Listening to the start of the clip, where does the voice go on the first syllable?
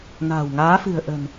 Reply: low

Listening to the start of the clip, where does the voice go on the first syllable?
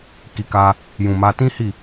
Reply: low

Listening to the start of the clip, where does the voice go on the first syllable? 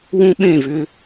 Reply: high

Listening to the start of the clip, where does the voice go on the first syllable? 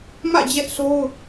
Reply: falling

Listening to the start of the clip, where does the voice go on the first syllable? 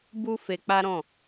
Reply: high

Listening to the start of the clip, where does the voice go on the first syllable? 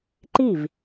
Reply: falling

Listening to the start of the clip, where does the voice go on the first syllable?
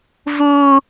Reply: high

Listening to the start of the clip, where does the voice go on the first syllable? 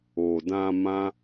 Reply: low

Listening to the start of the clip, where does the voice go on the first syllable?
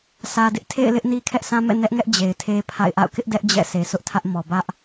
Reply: low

